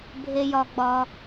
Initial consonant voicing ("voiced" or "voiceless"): voiced